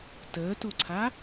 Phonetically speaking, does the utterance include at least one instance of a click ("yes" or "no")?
yes